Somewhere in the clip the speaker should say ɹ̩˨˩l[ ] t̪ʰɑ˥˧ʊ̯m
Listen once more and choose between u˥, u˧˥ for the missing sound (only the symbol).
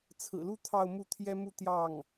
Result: u˥